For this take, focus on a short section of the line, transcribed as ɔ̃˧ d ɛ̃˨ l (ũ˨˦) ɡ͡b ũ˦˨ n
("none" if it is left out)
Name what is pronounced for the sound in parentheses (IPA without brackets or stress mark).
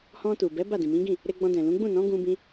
ũ˨˦